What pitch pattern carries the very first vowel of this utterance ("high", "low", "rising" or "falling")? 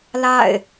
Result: falling